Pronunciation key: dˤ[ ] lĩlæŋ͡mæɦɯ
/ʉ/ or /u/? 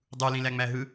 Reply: u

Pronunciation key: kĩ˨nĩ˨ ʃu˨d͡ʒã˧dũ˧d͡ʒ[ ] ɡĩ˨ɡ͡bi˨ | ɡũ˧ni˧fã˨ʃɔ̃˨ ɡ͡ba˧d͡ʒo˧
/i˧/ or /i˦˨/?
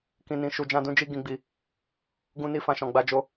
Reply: i˧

